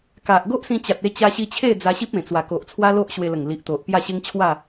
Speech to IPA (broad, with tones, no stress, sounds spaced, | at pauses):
k a˨ ʔ ɡ o˦ ʔ s ĩ˧ t͡ɕ a˨ t̚ e˧ t͡ɕ a˧ ɕ i˧ t͡ɕʰ e˥˧ d͡z a˧ ɕ i˦ p̚ ẽ˨˩ t͡s w a˨˩ k o˨ ʔ t͡sʰ w a˦ l o˦ ʔ ɕ w e˧ l ə˨˩ ŋ l i˨ ʔ t̪ o˨ ʔ p j a˥˧ ɕ e˦ ŋ t͡ɕʰ w a˥˧